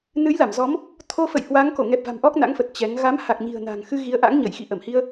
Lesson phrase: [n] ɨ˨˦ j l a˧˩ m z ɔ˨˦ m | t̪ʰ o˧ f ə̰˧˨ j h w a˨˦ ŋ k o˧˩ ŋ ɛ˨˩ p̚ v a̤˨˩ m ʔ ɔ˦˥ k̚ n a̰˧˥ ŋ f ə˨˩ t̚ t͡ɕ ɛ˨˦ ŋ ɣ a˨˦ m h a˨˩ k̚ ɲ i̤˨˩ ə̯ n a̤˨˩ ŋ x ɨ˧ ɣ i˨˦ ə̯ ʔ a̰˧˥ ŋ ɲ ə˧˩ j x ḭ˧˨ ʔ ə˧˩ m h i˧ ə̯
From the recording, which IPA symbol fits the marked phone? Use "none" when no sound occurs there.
n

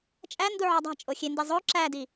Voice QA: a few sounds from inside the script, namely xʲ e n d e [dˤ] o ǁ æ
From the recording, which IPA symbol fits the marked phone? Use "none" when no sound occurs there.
zˤ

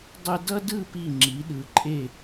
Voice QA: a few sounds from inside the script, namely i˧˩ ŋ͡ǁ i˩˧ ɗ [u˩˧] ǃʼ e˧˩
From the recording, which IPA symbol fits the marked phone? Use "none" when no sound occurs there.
ɯ˩˧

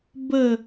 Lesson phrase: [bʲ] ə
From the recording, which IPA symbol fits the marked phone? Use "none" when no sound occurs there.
b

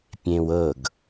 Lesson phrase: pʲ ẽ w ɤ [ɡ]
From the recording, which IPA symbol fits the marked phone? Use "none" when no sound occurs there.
ɡ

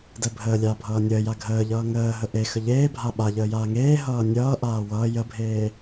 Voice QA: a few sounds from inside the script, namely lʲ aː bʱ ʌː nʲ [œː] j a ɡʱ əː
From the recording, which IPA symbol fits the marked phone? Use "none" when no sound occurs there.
əː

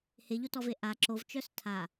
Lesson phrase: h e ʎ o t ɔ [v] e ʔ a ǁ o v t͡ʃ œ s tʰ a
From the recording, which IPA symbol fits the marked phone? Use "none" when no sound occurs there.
v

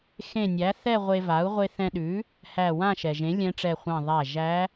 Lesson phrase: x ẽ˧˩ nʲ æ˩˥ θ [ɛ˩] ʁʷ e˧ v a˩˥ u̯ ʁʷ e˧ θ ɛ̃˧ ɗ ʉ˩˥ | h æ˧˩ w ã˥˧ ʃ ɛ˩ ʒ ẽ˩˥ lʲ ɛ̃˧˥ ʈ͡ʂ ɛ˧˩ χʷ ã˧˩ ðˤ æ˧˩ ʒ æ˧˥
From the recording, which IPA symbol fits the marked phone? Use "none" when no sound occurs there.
ɛ˥˧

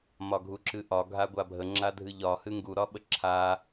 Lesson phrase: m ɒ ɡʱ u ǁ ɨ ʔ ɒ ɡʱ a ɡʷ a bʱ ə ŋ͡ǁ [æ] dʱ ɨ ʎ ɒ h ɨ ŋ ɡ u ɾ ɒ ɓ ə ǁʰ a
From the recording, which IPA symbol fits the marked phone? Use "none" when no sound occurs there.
a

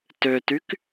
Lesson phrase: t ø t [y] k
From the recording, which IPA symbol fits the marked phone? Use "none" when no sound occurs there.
y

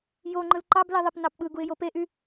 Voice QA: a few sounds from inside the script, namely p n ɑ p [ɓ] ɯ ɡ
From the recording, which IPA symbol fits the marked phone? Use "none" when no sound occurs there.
ɓ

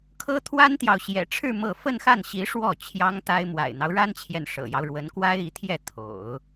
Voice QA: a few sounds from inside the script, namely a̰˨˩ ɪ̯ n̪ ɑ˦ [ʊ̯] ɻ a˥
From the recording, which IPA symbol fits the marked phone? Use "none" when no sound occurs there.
ʊ̯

